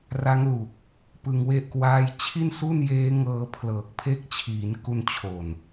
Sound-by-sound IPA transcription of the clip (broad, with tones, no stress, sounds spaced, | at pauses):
r a˦˥ ŋ l u˨˩ k̚ | p ɯ˧ ŋ w e˥˩ ʔ k w aː˥˩ j t͡ɕʰ i˥˩ n s u˥˩ n j eː˦˥ ŋ ɤː˧ pʰ l ɤː˨˩ k̚ pʰ e˦˥ k̚ t͡ɕʰ iː˩˦ n k u˧ n t͡ɕʰ o˨˩ n